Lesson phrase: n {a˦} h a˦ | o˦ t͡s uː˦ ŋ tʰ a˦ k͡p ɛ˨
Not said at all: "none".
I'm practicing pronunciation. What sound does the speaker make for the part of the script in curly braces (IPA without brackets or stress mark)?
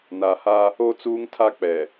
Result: a˨